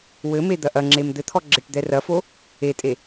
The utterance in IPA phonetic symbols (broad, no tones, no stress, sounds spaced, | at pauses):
w ɘ m e d̪ ɐ ʔ ɐ ŋ͡ǁ e m d̪ ɘ t̪ʰ ɔ ɡ͡ǁ e ʈ d̪ ɛ r ɐ f o | e tʼ e